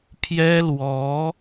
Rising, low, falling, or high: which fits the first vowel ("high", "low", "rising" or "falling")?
high